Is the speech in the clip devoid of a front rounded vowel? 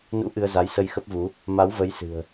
yes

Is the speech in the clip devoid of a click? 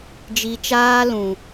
yes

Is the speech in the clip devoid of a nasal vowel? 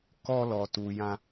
no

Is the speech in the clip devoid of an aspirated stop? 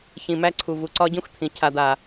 no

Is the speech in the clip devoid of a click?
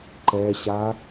no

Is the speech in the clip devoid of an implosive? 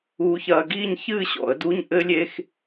yes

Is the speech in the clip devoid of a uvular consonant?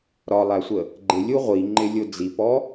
no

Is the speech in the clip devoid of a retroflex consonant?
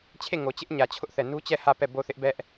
yes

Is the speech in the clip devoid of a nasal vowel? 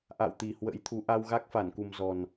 yes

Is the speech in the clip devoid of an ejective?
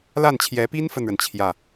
yes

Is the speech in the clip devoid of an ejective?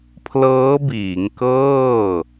yes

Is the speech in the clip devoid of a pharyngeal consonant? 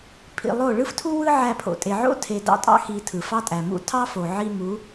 no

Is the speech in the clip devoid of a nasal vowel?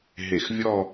yes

